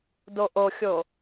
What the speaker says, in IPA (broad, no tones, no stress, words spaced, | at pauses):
doʔoxʲo